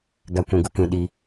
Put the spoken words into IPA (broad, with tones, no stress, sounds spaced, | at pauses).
ɡ a˦ kʷ ũ˧ ɡ u˦ k ĩ˧ ɗ i˧